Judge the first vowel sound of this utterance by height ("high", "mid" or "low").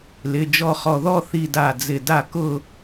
high